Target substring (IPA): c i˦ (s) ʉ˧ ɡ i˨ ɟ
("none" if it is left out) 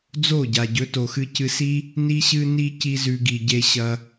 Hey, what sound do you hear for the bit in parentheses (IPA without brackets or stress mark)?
z